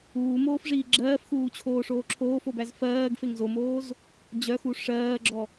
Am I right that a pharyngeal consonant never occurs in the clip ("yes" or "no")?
yes